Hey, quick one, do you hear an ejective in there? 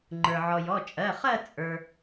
yes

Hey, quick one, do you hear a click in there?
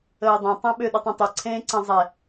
yes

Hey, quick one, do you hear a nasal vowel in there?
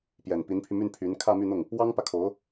no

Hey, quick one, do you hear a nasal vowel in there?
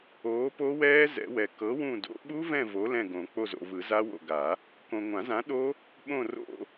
yes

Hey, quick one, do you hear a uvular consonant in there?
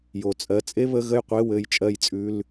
yes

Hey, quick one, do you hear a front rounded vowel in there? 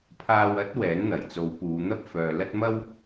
yes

